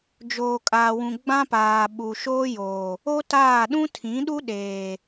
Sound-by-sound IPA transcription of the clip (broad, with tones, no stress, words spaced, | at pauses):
d͡ʒoː˨kʼaː˨wũ˨ ɡ͡bã˦paː˨ ɓu˨ʃoː˦joː˨ | o˦taː˦˨ ɗũ˦tʰĩ˨˦ɗu˦ ɗeː˨